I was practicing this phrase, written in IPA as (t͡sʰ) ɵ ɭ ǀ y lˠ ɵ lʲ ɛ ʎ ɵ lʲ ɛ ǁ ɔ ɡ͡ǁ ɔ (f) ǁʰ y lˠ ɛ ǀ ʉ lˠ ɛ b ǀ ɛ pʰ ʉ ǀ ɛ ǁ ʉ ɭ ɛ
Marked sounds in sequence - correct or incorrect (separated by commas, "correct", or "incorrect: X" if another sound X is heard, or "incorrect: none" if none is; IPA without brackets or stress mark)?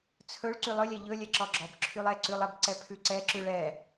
correct, incorrect: b